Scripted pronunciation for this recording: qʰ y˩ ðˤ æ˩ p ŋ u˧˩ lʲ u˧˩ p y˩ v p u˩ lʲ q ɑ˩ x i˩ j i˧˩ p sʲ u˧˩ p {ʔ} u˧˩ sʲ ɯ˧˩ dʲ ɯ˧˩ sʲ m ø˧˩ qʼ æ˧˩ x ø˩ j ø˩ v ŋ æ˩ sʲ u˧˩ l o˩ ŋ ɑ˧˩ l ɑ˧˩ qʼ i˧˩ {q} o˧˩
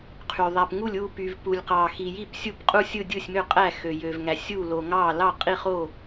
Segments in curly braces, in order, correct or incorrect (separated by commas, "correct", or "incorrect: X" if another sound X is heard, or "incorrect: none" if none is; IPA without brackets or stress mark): incorrect: qʼ, incorrect: χ